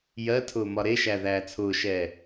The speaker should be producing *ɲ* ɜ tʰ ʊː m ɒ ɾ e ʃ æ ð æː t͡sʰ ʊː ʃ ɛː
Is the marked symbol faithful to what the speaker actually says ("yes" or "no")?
no